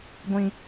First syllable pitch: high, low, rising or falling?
high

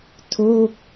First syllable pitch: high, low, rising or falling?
falling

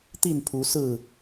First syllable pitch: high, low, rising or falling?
falling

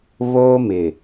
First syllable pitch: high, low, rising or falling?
high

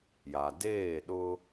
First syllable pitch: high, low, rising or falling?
low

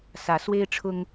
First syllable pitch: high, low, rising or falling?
rising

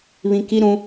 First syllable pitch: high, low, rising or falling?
high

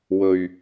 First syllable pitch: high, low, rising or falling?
low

